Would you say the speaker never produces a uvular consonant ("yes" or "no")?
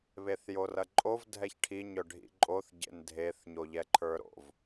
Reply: yes